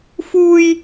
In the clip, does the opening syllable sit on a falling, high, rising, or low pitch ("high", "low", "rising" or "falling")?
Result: high